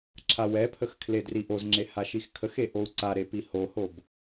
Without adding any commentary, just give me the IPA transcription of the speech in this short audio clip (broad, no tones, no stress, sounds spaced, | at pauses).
ǁʰ a w ɛ pʰ ə x kʰ l e d r i ʔ o z ŋ͡ǁ e h a ʃ i x kʰ ə x e ʔ o u̯ ǀ a ɾ e p i h o h o b